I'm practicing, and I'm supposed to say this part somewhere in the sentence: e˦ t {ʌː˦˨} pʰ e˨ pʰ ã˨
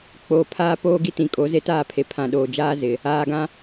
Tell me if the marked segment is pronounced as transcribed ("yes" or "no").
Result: no